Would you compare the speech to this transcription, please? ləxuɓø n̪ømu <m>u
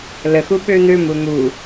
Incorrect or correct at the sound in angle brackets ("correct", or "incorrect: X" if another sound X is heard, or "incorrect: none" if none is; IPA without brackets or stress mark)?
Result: incorrect: n̪